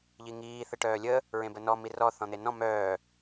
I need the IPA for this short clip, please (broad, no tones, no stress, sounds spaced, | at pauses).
ʎ i ŋ iː θ ə ʈ œː lʲ ə | ɹ ẽ b ə n ɔ m i r ɔ θ ɔ̃ n̪ e n ɔ̃ m œː